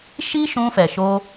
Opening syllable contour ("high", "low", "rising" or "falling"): high